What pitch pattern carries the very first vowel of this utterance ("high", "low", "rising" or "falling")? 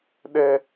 high